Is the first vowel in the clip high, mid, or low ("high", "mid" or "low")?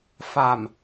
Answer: low